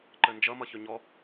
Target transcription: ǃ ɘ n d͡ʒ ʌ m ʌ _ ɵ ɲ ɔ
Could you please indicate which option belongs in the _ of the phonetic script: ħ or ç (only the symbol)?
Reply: ç